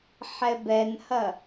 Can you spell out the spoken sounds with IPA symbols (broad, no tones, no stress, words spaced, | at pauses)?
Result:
ħɛbɛnhɐ